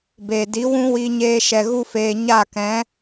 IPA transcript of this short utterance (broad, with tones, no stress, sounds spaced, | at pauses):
b eː˨ d i˨˦ w ũ˦ w i˧ ɲ eː˧ ʃ ɛ˨ ɣ u˧ f eː˨ ɲ a˦˨ k ɛ̃˨˦